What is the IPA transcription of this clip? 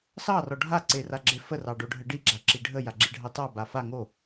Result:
s ɑ r ɔ ɖʱ a ǀ e r a ɡ͡ǁ e f ə r ɑ ɖ o ɖʱ ə ɖ i ɡ͡ǁ a ǁ i ɖʱ ə j a ɡ͡ǁ i ɖʱ ɑ t ɑ b a f a ŋ o

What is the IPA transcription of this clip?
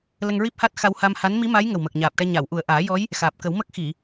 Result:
l ə˧ ŋ ɹ i˦˥ p̚ h a˦˥ t̚ x a˧ w h a˧ m h a˧˥ n m i˧˥ m a˧˥ j ŋ ə˨˩ w m əː˨˩ k̚ ɲ aː˨˩ p̚ ʈ ɛ˧ ɲ a˨˩˨ w ʔ u˨˩ ə̯ ʔ aː˨˩˦ j ɔ˧˥ j | x aː˨˩ p̚ k ə˨˩˦ w m ə˦˥ k̚ x i˨˩˨

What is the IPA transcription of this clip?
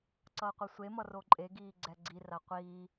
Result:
ǀ ʌː qʷ ɛ sʷ e m ʌ r o ǃʼ e ɡ iː ɡ͡ǀ ɛ ɡ͡ǀ i r a qʷ iː

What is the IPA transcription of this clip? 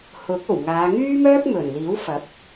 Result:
h ʊ˨˥ k̚ o˨˩ w ŋ aː˨˧ ŋ yː˥ m œː˥ k̚ m ɵ˨˩ n l iː˨˥ w f ɐ˨˥ p̚

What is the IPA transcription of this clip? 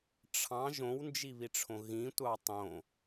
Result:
ʈ͡ʂʰ ɑ̃ ʒ õ w n d͡ʒ i β i ʈ͡ʂʰ õ ɣ ĩ tʷ ɑ tˤ õ

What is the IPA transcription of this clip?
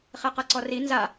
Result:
χ e q ɤ ǀ ɔ r i n z a

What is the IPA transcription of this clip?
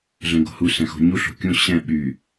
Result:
ɮ ɛ̃ ɡ o̤ h u s ɛ̃ x o̤ ɲ u ɬ o̤ kʲ ũ ɕ ɛ̃ ɓ y

